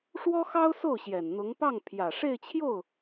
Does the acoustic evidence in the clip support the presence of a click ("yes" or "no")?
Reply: no